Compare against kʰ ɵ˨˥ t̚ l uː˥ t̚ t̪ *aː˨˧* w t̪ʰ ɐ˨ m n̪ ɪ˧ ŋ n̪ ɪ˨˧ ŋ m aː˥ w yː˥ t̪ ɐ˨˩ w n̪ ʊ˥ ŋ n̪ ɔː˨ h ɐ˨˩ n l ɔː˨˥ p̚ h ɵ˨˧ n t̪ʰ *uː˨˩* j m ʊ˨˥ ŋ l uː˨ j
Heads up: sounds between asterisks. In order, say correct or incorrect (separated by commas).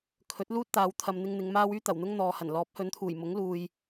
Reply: correct, correct